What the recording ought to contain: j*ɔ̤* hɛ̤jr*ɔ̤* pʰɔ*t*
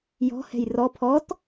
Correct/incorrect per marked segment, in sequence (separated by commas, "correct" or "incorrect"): correct, incorrect, correct